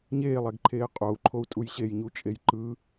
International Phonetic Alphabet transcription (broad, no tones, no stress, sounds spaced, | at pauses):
ɲ eː lˠ ɛ ɡ ǃʰ eː qʼ o u̯ ǃʰ o u̯ tʼ u j ɕ e j ɲ u t͡ʃʼ e j ǃ ɯ